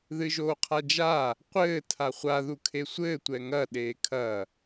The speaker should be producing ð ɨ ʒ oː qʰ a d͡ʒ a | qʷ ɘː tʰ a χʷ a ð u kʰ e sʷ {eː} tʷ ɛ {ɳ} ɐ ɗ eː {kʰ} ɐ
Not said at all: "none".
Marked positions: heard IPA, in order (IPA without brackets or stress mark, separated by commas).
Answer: ɘː, ŋ, kʰ